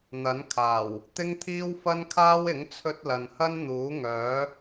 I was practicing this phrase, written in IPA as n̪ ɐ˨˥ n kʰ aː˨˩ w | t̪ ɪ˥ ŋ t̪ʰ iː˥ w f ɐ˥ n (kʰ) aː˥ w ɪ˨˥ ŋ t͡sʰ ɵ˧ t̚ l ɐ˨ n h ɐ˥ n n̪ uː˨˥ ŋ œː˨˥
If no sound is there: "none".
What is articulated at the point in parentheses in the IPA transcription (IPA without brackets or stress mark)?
kʰ